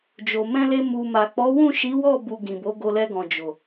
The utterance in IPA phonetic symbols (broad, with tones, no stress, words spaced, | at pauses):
d͡ʒo˨ mɛ̃˧le˧ mu˨ma˨k͡pɔ˨˦ wũ˦˨ʃi˨˦wɔ˦˨ bu˧ɡĩ˨ bo˨˦ɡo˧lɛ˧ɡɔ̃˨ d͡ʒo˨